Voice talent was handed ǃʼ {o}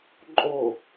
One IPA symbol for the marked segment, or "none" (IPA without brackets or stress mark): o